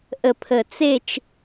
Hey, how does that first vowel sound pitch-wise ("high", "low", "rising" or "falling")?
low